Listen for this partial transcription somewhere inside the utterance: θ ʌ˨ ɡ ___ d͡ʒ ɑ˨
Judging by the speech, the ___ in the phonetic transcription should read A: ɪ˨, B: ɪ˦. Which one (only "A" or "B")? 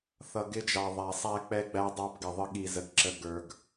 B